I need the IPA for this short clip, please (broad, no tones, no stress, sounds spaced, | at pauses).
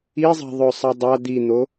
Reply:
i zˤ a̤ ðˤ ɵ sˤ a dˤ a d̪ i n̪ o